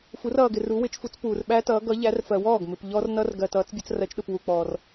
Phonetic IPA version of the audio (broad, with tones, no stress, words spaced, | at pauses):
fu˨˦rʌː˨ɡɪ˨ ru˨˦wɪ˨˦t͡ʃfu˨˦t͡s puː˨rɓæ˦˥tʌː˨˦ ɡʌ˨˦ʎæ˨˦rfɜ˨wɔː˥˩ɡ mɪ˨p ʎɔ˦˥rnʌ˦˥r ɡɜ˨ tʌː˨˦t͡sbʲʌ˨˦t͡srɜ˨˦t͡ʃɗʊ˨p wu˨ k͡pɔː˨r